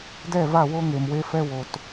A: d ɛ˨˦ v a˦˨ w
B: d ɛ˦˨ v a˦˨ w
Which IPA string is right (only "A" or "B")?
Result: B